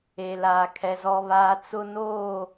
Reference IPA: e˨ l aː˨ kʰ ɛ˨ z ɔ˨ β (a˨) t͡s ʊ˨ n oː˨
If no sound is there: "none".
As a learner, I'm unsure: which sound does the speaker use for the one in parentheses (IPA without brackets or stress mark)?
aː˨